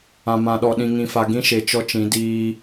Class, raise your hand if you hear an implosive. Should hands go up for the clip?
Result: yes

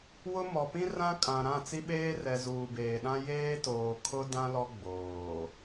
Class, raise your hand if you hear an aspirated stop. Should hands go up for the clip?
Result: yes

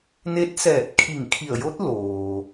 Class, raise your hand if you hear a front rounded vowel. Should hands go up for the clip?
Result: no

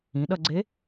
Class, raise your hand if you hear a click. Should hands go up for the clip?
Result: yes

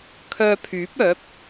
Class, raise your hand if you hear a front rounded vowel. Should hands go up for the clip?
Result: yes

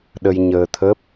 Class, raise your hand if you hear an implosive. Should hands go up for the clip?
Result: yes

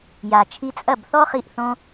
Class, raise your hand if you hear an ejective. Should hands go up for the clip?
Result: yes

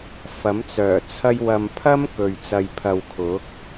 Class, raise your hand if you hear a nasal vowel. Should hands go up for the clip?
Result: no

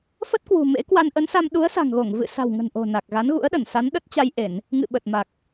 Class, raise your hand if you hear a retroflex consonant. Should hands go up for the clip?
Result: no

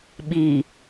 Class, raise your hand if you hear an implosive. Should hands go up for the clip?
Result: yes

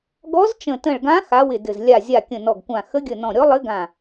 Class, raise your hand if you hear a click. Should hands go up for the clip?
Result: no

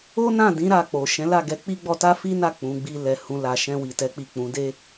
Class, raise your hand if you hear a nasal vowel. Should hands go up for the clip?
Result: yes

